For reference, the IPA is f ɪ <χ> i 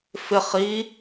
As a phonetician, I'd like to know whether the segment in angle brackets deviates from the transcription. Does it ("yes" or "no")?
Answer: no